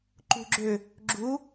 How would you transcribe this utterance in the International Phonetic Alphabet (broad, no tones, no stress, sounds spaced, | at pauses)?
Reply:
ǃ ṳ ɡ͡ǁ ø | ɡ͡ǁ u